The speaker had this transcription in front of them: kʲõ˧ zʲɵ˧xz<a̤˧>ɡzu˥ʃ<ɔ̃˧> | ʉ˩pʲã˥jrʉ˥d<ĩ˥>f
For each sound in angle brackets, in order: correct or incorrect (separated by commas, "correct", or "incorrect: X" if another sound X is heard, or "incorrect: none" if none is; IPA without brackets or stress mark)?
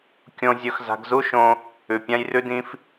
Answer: correct, incorrect: õ˧, correct